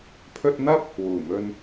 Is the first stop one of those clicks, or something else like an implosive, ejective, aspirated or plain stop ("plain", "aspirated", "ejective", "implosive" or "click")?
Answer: aspirated